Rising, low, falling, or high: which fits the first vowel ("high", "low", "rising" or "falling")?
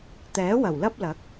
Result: rising